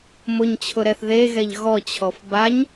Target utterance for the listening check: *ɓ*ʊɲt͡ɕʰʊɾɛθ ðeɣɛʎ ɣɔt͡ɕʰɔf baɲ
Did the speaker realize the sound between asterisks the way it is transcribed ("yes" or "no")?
no